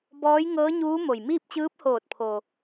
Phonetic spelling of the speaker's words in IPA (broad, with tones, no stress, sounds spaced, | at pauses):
b ɔː˧˥ j ŋ ɤː˧˥ ɲ uː˧˥ m o˩ j m iː˥˨ p̚ t͡ɕ ɯː˧˥ p̚ h oː˧˩ t̚ pʰ o˩